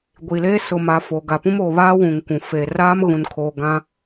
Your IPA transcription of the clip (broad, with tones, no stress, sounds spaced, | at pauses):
ɡʷ i˨ l eː˦ s ʊ˨ m a˨ f oː˨ ɡ a˨ p ũ˦ m oː˨ β aː˦ w ũ˨ ŋ kʷ ũ˨ f e˨ r aː˦ m ɣ ũ˨ n kʰ oː˨ ɡ ã˦